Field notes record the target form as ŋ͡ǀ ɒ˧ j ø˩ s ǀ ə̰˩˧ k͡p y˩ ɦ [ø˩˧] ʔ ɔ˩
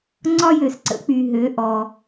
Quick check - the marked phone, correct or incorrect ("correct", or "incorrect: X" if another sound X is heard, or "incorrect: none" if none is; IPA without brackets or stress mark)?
correct